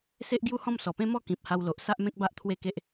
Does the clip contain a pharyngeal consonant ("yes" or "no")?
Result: no